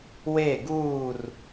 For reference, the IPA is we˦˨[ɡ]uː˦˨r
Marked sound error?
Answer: no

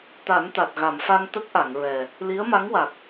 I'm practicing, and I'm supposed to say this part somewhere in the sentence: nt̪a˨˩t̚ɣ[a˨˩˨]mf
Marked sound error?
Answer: no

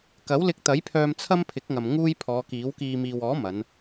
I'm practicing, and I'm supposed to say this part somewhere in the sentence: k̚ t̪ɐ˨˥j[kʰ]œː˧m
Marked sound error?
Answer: yes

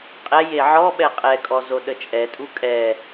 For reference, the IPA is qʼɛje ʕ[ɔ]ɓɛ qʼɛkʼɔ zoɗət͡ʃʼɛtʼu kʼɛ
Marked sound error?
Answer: no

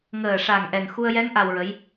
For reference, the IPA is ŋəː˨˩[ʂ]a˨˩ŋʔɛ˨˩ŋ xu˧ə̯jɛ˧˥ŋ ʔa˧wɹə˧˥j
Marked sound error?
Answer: no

